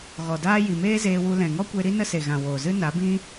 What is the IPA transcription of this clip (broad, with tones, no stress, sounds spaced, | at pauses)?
ɣ ɔ˨ d aː˦ j i˨ m eː˦ z eː˧ w u˧ l ɛ̃˨ ŋ ɔ˦ kʷ e˧ ɾ i˦ n ə˦ s e˨ ɣ ã˨ w oː˨ z ɨ˦ n a˨˦ b ĩ˦